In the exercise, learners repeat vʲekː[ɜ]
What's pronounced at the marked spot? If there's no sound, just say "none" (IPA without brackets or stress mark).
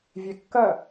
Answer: ɜ